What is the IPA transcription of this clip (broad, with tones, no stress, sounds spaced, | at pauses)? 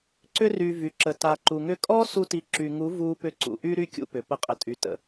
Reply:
ǀ ʏ˧ r y˨ v y˨ ǁ ə˨ t a˨ ǃ u˨ ŋ ʏ˦˨ kʼ ɔ˦ s u˧ t i˨˦ ǁ y˨ ŋ u˨˦ v uː˧ p ʏ˧ ǀ ṵ˨ ʔ y˦ ɾ y˦ kʲ ṵ˧ p ʏ˨ p ə˨˦ qʼ ə˨ tʼ y˨ t ə̰˨